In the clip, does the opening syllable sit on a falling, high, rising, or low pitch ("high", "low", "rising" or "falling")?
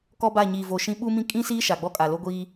high